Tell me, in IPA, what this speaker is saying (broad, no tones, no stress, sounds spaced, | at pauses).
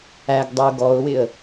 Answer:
æ ɡ dˤ ə ʊ̯ ɡ ɔ ʊ̯ w ɪ ə̯